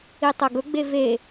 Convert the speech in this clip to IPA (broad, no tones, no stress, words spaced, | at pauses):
itˤɐɡɵɡ͡be ve